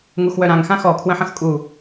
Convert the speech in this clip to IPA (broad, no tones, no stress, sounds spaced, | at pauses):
ŋ u x w œ ɾ ã ŋ x ã x ɔ kʰ w ə̃ ħ ə̃ x kʼ u